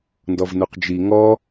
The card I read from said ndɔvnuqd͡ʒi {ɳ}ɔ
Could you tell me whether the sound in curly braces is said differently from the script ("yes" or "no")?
yes